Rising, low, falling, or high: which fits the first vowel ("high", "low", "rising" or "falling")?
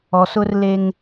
low